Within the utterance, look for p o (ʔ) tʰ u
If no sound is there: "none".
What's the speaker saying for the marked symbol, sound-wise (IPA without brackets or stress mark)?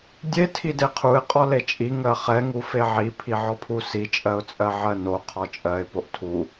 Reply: ʔ